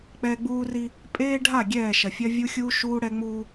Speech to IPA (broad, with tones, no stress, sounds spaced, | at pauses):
k͡p ɛ˦ ɡ͡b uː˦ r i˦ | pʼ eː˦ ɖʱ a˦˨ ɡʲ ɛː˦˨ ʃ ɐ˨ fʲ ɐ˦ vʲ u˦ xʲ uː˦ ʃ uː˦ ɽ ɛ˦ ŋ͡m uː˦